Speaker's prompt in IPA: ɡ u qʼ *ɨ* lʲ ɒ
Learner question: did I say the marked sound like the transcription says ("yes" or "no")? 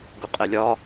no